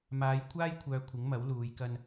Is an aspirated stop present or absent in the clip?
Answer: present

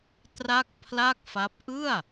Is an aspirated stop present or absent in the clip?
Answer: present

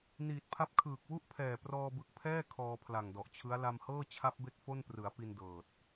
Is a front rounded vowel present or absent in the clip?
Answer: absent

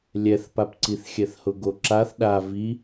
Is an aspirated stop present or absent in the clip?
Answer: absent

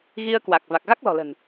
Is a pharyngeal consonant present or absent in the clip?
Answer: absent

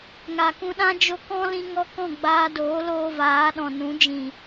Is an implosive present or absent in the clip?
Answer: present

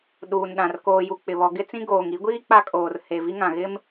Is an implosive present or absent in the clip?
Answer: present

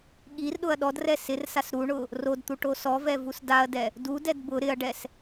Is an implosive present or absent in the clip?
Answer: present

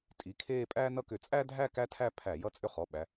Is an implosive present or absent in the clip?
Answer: present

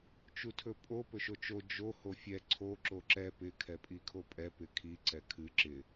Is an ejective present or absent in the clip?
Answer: present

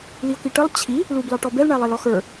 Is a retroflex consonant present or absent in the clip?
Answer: present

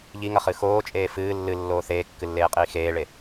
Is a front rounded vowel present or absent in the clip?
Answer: absent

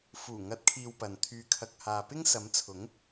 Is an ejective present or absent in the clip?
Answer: absent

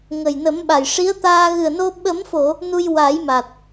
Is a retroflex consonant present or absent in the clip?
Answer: present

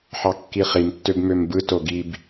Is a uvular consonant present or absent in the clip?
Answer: present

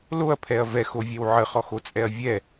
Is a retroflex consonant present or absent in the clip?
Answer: absent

